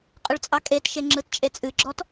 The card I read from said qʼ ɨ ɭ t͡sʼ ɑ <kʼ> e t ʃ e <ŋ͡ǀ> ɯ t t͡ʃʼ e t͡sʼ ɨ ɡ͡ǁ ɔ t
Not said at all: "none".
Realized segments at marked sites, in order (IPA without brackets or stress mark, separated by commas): kʼ, ŋ͡ǁ